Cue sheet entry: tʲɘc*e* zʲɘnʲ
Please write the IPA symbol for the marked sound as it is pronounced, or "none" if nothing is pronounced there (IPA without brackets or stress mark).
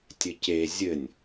e